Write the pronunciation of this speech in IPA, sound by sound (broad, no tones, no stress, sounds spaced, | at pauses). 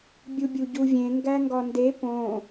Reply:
bʲ u bʲ u ɟ u vʲ ẽ ŋ ɡ æ ŋ ɡ ɒ n d e p õ